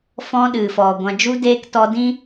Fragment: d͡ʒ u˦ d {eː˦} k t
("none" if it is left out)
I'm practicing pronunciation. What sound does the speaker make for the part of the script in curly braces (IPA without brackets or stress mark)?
eː˦